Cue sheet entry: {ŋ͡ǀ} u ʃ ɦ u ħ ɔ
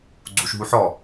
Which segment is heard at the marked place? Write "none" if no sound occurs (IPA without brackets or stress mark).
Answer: ɡ͡ǀ